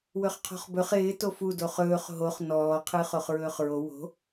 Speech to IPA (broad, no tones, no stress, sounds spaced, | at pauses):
w ɵ χ qʰ ɔ̤ χ b ɵ χ ɪː t o f u d o χ ɵː χ ɦ o χ n ɔː qʰ ɨː χ o χ ɹ ɵː χ ɹ o w o̤